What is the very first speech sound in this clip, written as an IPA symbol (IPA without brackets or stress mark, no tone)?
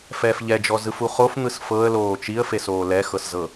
f